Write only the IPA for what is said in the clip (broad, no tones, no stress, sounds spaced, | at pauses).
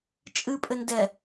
t͡ʃʼ ɨ pʼ ɘ n d ɛ